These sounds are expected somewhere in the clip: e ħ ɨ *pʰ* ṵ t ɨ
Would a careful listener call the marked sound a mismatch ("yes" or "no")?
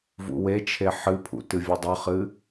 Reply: no